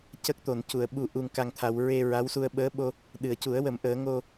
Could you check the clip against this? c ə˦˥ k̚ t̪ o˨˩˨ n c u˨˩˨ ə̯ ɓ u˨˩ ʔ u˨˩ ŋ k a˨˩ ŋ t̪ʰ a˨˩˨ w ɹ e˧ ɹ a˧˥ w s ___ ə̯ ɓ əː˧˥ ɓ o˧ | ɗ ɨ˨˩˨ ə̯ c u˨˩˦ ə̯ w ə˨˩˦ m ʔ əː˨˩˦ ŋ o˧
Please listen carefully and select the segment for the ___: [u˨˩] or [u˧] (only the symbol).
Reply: u˧